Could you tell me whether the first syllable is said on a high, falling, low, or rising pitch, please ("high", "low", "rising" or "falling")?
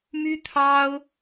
high